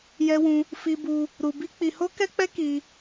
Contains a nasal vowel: yes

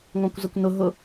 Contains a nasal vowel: yes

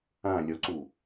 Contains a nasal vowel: yes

